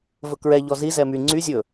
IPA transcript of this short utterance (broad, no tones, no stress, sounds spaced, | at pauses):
v ɵ k ɹ ɛ ʎ ɔ z i z ɛ m y ŋ͡ǀ y zʲ ɵ